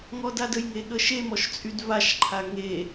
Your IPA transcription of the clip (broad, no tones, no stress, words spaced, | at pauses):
ŋɔdadəjŋe ɠəʃemɔʃ t͡sʼydvaʃǃʰa ŋe